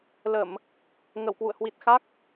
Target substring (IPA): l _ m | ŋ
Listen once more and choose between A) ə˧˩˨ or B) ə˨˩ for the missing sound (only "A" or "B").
A